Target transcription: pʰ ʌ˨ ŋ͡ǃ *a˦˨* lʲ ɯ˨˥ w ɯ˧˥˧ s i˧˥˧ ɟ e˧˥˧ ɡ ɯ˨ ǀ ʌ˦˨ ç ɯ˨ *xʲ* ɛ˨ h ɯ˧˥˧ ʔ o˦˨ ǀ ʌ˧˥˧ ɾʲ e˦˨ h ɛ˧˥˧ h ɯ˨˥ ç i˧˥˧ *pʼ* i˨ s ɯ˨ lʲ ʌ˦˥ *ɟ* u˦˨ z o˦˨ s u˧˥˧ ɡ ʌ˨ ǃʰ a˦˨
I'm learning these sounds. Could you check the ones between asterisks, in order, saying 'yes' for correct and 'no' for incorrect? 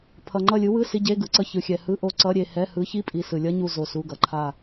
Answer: no, yes, yes, no

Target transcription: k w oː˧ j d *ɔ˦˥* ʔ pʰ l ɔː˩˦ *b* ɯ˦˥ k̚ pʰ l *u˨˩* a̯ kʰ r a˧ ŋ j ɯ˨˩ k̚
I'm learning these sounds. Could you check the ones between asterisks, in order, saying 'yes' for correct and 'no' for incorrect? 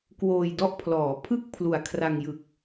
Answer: yes, no, yes

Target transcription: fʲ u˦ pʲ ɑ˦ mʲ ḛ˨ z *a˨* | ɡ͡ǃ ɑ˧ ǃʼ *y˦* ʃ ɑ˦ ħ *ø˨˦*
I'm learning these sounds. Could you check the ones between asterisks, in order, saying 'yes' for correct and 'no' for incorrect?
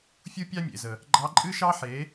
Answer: no, no, no

